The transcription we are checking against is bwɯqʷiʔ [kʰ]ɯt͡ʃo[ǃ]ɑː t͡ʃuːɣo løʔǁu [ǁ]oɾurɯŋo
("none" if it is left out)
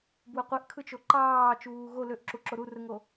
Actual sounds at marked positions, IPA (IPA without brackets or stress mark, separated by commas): kʰ, ǃ, ǁ